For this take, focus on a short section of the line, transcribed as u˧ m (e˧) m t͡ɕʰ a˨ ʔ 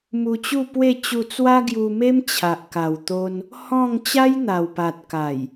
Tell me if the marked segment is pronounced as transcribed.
no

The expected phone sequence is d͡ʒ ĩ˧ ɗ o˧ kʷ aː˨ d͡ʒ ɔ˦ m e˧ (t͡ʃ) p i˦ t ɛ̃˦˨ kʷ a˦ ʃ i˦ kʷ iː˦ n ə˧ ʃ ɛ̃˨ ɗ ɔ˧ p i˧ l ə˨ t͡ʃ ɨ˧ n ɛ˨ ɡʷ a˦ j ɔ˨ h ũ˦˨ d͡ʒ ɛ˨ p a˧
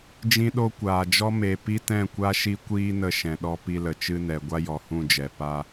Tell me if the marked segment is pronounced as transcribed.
no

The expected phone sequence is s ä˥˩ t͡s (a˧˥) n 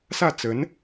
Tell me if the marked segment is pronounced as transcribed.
no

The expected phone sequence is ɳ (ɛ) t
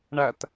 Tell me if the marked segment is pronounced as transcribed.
no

